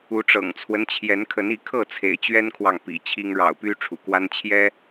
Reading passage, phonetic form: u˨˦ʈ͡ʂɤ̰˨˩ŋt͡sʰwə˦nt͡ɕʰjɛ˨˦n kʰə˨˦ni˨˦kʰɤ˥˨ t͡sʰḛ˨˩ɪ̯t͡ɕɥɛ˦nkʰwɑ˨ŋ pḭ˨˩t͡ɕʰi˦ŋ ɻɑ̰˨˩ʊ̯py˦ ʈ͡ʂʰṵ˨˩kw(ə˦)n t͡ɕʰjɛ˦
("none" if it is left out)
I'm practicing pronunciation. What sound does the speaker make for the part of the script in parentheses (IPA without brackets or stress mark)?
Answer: a˦